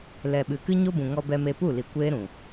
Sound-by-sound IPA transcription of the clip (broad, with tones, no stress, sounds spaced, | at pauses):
l ɛ˨ ɓ ɨ˨ k ɨ˦ ɲ o˦ b ũ˨ ŋ ɔ˧ b ɛ˧ m e˧ p u˦˨ l i˨ kʷ eː˦ ɾ ũ˨